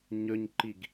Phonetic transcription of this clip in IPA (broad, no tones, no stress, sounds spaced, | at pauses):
ɲ ɵ ɲ ǃ i ɡ